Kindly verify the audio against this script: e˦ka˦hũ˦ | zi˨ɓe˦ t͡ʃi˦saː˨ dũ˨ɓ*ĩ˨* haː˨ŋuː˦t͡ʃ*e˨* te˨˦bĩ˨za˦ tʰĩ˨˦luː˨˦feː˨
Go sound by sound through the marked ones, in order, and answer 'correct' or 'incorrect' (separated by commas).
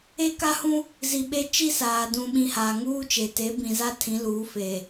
correct, correct